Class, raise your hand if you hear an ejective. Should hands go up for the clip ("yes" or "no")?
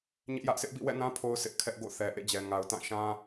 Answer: no